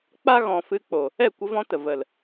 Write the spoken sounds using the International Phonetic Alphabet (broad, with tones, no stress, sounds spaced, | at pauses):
k͡p a˦ ɣ ɔ̃˨ f ɨ˧ k͡p o˨ | ɛ˦˨ kʷ ə˧ v ɔ̃˧ t ə˨ v ə˨ l